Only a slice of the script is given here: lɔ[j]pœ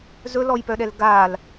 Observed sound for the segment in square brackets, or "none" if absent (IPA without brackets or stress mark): j